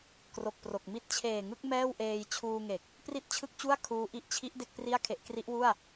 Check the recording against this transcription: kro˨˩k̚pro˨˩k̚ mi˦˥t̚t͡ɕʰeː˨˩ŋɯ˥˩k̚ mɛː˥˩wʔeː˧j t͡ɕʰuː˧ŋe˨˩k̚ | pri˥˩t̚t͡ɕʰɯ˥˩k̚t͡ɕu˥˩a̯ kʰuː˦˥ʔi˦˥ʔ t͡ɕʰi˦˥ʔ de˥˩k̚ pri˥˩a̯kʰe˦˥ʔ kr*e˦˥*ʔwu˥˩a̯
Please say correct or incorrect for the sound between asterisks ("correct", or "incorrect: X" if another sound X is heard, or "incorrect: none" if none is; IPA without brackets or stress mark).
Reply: incorrect: i˦˥